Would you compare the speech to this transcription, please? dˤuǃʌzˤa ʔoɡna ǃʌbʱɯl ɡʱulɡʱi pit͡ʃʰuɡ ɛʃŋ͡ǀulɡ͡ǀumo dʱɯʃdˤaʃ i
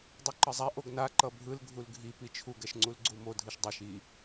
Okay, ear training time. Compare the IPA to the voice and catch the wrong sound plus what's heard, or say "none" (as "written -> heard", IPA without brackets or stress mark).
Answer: none